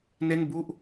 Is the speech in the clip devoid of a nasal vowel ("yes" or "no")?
yes